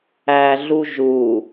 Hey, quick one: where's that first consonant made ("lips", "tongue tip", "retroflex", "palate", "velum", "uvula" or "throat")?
tongue tip